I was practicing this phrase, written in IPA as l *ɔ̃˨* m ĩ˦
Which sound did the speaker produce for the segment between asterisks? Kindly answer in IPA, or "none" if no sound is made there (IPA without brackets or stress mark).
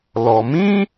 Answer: ɔ˨